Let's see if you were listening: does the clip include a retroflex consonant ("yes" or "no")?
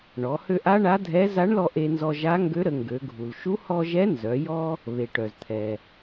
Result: yes